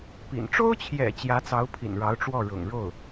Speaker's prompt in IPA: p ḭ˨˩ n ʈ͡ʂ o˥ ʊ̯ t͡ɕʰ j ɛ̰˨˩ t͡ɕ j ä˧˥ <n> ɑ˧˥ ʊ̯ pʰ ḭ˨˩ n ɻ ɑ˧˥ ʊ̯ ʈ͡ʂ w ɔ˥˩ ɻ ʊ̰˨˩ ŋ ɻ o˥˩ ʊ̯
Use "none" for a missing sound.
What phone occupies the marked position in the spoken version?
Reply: t͡s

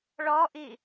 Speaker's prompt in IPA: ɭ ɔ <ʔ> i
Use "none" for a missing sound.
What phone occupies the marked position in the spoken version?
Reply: ʔ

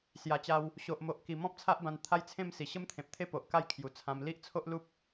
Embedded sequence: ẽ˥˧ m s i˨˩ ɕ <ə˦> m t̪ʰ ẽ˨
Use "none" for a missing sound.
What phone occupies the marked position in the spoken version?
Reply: ə˦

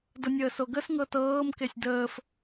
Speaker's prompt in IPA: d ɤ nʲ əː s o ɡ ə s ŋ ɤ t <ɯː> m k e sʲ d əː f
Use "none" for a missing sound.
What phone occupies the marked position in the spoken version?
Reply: ɤː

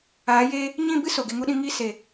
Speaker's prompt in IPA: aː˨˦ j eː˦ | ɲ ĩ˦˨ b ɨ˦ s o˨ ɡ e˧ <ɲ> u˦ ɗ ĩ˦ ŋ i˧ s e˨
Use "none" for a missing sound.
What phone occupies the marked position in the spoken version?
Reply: ŋ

